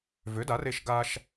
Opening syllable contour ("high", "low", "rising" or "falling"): rising